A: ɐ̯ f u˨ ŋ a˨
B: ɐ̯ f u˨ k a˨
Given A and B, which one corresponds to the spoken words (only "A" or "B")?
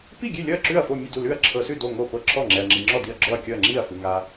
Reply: A